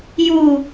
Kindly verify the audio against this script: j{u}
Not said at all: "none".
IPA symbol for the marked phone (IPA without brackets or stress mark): u